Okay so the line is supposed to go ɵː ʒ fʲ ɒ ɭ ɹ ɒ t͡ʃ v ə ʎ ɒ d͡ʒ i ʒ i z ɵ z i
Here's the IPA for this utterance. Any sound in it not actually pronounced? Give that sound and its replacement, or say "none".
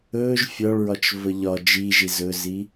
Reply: none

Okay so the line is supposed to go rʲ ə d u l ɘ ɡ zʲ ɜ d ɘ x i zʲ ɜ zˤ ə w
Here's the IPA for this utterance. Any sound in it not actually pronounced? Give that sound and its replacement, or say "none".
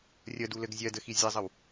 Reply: none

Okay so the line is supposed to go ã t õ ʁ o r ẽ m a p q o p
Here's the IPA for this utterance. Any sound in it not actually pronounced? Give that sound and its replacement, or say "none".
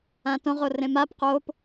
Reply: none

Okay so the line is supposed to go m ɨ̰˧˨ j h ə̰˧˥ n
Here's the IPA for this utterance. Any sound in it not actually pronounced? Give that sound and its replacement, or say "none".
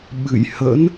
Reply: m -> ɓ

